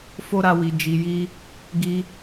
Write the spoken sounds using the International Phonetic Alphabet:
f o˦ ɾ a˧ w i˨ d͡ʒ i˨ j i˧ | ɡ i˧

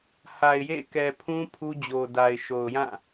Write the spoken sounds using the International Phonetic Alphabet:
h a˨ ɪ̯ j ḛ˦˨ k ɛ˨ pʰ ũ˦ pʰ u˦ d͡ʑ o˨ d a˨ ɪ̯ ʃ o˨ ʊ̯ j ã˦˨

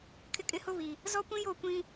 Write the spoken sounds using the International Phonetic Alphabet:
kʰ ɪ˦ kʼ ɪ˦ h ʊ˦ β i˨ | z ɔ˦ kʷ ĩ˦ j o˦˨ kʷ ĩ˦

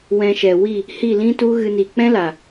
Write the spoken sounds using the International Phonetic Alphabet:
w ɛ̃˧ ʃ ɛ˨ w i˦˨ | h i˦˨ l ĩ˦ t u˦ ɣ ɨ˦ n i˧ k͡p ɛ̃˦ l a˨

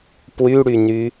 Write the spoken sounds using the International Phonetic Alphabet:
p w y ɽ y n y

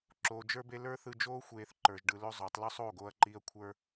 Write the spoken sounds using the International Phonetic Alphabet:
ǁ oː˧ d͡ʒ ə˞˦ b e˦ l ə˞˦ θ ɯ˧ d͡ʒ oː˦ xʷ eː˧ θ ǃ ə˞˧ ʒ ɖ ɯ˧ l ɵ˦ zˤ o˨˦ tˤ l ɵ˦ sˤ oː˦˨ ɡ oː˧ ɐ̯ ǃ iː˧ ɐ̯ kʷʰ ə˞˧

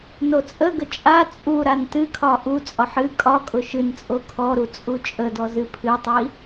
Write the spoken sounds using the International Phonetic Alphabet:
n o t͡sʼ ə ɡ ə t͡ʃʼ a t͡sʼ u ɾ a n t ɨ kʰ ɒ ʔ u t͡sʼ ɒ ħ ɨ kʼ ɒ kʼ ʊ ʃ ɨ n t͡sʼ o kʰ ɔ ɾ u t͡sʼ u t͡ʃʼ ə d ɔ z ɨ pʰ ɨ tˤ i

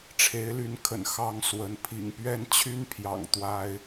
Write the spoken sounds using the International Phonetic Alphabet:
ʈ͡ʂʰ e˧˥ ɪ̯ l y˧˥ n kʰ ə̰˨˩ n x ɑ˥ ŋ s w ə˧˥ n pʰ ḭ˨˩ ŋ p ɥ ɛ˥˩ n t͡ɕʰ y˥ n pʰ j ɑ̰˨˩ ŋ t̪ w a˥ ɪ̯

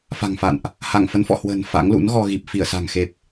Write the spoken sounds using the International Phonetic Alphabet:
f a̤˨˩ ŋ f a̰˧˨ n ʔ | h a˧˩ ŋ f ə˨˦ n f ɔ̰˧˨ h w ə̤ː˨˩ n f a̰˧˥ ŋ l ṵ˧˥ n ɣ ɔ˧ ɣ i˨˩ p̚ f i˧˩ ə̯ s a̤˨˩ ŋ x e˨˩ p̚

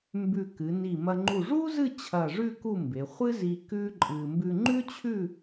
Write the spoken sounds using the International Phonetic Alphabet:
m b ʉ˧˩ k ɨ˩˧ n i˧˩ m ɐ˧ ŋ͡ǃ u˧˩ ʐ u˥ z ɨ˥˧ t͡ɕʰ ɐ˧˩ ʐ ʉ˥˧ k u˥˧ m b e˩˧ χʷ ɨ˥ z i˧ k ʉ˥ ǃʼ ɨ˧ m b ʉ˧ ŋ͡ǃ ʉ˥ t͡ɕʰ ʉ˥˧

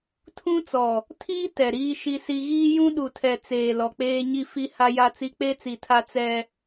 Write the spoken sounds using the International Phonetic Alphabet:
tʰ ũ˦ t͡s ɔ˨ | tʰ iː˦ t ɛ˨ ɾ iː˦ ʃ i˦ s i˦ ɣ iː˦ j ũ˦ ɗ u˨ tʰ ɛ˨ t͡s eː˨ l ɔ˨ k͡p eː˦ ɲ i˦ f i˦ h a˦ j a˦ t͡s i˦ k͡p e˦ t͡s i˨ tʰ a˦ t͡s ɛ˦

